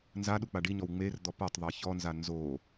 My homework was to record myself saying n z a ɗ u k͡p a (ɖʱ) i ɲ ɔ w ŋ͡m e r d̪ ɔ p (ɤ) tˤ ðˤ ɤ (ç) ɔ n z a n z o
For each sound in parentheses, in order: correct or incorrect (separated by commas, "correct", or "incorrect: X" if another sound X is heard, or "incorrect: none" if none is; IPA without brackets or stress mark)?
incorrect: ɖ, correct, correct